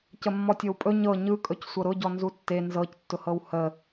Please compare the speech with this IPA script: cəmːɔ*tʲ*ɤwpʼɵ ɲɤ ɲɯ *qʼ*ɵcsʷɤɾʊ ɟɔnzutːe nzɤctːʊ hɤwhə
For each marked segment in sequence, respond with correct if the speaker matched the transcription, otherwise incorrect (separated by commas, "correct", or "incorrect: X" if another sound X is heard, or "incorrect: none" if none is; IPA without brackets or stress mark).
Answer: correct, incorrect: kʼ